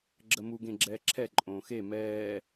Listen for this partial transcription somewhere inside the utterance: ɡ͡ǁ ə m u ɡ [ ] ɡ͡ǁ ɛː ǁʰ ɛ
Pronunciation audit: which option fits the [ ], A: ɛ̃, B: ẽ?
B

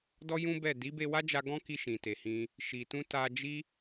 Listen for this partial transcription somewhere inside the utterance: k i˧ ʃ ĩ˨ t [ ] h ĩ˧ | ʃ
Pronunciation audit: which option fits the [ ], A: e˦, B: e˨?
B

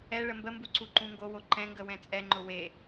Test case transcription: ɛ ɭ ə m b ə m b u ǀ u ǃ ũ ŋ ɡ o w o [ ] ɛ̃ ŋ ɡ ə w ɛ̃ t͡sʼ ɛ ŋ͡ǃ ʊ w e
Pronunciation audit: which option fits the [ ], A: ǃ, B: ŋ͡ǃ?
A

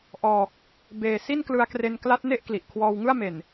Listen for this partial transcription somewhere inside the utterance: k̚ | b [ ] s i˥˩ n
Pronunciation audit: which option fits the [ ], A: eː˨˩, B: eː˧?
A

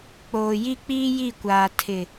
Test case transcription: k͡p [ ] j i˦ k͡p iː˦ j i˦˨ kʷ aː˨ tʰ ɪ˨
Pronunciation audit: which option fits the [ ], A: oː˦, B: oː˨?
B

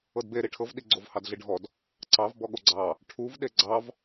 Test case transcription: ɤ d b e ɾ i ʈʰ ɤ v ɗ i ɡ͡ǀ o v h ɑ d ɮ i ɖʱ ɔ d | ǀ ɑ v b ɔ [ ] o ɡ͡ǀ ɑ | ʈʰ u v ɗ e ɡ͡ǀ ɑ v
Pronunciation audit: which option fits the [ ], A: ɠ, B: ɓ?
A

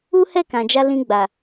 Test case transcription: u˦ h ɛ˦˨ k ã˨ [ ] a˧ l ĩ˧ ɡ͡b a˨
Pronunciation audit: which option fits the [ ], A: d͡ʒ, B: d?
A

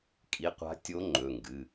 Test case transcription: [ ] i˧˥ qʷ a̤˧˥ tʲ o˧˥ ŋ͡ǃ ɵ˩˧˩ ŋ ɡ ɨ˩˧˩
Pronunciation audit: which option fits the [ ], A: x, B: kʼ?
B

